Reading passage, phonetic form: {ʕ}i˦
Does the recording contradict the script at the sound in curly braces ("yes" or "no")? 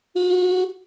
yes